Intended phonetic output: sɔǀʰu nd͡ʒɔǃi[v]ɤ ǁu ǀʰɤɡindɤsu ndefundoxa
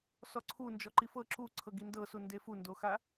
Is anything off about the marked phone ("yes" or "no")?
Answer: yes